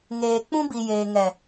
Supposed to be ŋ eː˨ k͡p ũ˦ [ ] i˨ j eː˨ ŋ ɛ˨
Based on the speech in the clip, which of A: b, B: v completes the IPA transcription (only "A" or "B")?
A